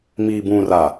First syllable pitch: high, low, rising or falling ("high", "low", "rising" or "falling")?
low